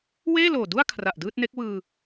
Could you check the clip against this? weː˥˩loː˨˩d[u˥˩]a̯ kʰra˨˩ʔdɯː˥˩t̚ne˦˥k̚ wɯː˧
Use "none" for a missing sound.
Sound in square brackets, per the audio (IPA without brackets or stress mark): u˥˩